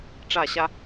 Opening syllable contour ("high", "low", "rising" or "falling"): falling